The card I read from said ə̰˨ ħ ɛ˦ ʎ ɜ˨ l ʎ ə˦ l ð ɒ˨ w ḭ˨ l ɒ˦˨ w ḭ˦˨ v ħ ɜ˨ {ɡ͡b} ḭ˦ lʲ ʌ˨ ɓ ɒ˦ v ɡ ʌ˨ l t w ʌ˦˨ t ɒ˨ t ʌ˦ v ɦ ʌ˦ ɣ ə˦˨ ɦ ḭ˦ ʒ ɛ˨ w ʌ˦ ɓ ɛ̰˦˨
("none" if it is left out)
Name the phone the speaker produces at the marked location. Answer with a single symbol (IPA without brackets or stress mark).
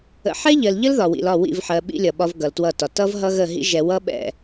ɓ